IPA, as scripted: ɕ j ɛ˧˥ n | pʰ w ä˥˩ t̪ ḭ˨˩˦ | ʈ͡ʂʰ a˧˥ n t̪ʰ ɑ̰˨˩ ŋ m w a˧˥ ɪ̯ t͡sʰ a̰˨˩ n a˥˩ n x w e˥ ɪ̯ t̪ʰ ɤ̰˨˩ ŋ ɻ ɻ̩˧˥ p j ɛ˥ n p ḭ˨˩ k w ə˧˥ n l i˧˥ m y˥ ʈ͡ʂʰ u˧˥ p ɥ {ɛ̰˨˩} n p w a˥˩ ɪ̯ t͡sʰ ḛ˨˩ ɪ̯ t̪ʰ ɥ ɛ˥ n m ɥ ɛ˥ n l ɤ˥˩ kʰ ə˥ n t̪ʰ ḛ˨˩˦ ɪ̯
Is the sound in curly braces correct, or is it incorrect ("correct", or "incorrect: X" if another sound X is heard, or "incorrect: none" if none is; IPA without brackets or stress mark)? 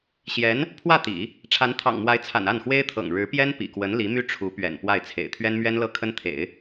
correct